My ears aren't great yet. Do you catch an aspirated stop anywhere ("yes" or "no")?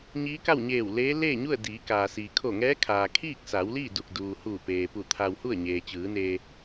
yes